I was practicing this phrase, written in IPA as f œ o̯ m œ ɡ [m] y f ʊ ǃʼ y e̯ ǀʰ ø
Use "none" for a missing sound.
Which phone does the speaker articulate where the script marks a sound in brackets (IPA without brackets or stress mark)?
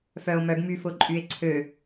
m